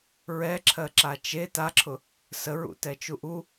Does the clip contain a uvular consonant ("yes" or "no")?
no